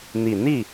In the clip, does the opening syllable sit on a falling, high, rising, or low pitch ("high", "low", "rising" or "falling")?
low